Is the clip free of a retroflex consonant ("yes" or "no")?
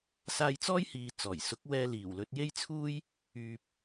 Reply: yes